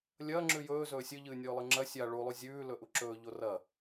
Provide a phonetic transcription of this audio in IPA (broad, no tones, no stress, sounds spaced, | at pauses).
lʲ ɐː ŋ͡ǁ ʉ j ɵː z ɵː sʲ ɨ ʎ ɨː nʲ ɵː lˠ ɨ ŋ͡ǁ ɐ sʲ a ɭ u lˠ u zʲ ʉː l ɵ ʔ u ǁ ɵː ʎ o r ɐ